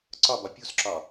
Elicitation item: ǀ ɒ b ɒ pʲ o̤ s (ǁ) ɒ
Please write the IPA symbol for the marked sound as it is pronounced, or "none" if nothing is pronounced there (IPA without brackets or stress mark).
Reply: ǁ